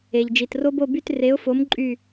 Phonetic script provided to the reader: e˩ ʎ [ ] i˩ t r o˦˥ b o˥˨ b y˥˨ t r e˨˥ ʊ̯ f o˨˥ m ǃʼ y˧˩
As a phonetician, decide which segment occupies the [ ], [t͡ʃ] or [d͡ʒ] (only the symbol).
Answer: d͡ʒ